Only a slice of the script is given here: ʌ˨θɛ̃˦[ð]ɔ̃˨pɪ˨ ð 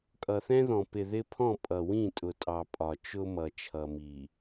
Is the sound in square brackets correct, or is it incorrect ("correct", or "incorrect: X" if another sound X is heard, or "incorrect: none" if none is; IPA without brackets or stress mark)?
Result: correct